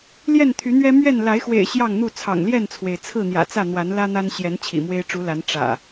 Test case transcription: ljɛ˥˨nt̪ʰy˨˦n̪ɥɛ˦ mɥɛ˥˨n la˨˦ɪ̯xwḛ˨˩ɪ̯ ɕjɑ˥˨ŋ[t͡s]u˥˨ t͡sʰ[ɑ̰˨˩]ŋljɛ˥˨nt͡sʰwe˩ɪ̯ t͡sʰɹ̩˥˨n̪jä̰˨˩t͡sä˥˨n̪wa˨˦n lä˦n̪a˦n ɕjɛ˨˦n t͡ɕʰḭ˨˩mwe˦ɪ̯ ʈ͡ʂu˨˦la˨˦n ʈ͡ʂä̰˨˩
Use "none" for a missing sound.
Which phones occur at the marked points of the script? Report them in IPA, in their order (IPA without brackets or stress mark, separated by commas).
n̪, ɑ̰˨˩